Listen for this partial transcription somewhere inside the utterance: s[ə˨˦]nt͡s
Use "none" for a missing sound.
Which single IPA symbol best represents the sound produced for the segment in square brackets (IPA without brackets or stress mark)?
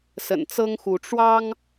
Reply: ə̰˨˩